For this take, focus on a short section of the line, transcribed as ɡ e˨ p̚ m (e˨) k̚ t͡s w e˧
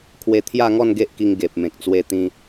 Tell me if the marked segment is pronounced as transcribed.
no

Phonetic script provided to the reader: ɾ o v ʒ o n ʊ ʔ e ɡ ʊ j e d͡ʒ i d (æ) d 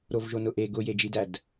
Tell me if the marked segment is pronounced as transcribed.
yes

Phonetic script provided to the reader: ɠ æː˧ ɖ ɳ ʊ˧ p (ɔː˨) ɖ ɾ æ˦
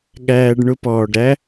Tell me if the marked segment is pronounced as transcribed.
yes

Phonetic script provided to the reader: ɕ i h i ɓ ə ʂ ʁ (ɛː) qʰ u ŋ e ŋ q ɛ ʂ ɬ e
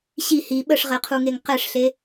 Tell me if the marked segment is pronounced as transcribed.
no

